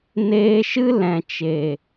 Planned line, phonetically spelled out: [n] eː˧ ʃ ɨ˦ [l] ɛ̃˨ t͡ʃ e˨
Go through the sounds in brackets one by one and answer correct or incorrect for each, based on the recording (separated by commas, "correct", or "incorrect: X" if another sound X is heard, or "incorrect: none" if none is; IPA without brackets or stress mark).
correct, correct